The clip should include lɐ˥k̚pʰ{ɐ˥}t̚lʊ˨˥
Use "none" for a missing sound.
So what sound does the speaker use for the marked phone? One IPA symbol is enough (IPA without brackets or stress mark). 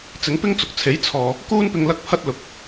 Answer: ɐ˥